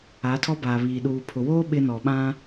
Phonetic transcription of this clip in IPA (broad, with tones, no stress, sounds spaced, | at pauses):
a˨˦ tʰ ɔ˦ b aː˨ β iː˨ ɗ uː˨ pʰ ʊ˨ w oː˦ ɓ ɪ˦ n ɔ˨ ɓ ã˦